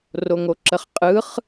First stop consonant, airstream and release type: click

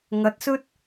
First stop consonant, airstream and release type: plain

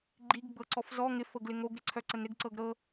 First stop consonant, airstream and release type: click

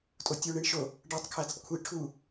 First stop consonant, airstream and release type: ejective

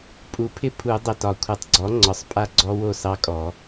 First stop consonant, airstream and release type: ejective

